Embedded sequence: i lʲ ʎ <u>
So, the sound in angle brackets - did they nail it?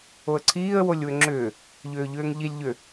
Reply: no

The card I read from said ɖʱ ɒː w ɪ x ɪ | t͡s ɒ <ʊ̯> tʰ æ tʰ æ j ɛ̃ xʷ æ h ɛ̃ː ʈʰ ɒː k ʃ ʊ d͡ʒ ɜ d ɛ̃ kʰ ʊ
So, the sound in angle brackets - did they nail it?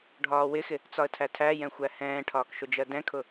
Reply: no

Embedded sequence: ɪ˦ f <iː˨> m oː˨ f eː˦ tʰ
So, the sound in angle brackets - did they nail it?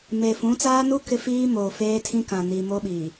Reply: no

